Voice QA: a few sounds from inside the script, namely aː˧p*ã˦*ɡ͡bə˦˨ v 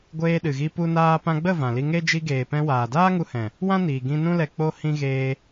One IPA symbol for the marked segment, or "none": ã˧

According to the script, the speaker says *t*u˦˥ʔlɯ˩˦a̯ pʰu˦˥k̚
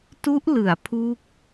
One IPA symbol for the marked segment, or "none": t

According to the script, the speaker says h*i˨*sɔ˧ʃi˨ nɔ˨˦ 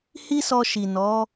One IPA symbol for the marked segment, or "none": i˦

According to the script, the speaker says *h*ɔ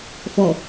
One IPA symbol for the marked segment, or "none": f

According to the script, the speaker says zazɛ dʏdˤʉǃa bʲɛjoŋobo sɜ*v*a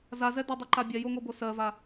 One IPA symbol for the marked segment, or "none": v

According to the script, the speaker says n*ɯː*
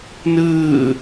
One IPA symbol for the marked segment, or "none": ɯː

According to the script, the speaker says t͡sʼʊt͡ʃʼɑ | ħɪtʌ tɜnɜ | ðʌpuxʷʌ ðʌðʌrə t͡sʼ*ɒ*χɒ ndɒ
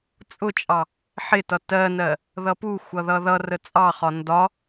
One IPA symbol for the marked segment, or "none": ɑ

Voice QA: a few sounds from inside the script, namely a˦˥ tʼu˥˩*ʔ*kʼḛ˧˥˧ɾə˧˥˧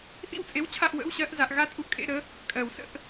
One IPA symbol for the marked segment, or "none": ʔ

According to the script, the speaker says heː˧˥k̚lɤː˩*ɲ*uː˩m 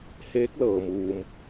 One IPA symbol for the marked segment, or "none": m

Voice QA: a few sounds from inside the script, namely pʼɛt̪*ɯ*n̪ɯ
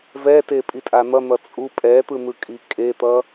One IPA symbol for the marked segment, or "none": ɯ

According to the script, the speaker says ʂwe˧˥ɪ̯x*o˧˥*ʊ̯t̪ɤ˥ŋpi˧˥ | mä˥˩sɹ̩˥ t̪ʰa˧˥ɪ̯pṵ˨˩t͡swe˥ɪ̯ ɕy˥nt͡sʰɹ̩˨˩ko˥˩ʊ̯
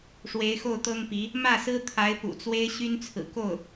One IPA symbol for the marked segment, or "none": o˥˩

